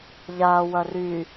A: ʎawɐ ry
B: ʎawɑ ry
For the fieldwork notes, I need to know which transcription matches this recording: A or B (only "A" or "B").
A